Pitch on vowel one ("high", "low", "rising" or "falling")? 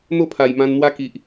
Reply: falling